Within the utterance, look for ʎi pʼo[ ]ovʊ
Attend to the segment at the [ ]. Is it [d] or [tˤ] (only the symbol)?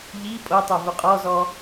tˤ